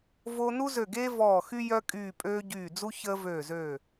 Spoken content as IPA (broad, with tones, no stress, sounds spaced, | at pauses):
v o˦ n u˦ z ø˧˩ ɡ eː˦ v ɔː˧˩ x y˦ j œ˦ kʼ yː˧˩ pʼ øː˦ ɟ yː˧˩ d͡z u˦ ç əː˦ v øː˧˩ z øː˧˩